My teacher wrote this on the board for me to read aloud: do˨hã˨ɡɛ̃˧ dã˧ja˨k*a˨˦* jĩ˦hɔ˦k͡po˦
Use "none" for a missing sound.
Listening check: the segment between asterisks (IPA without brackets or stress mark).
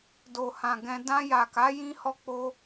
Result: a˨˦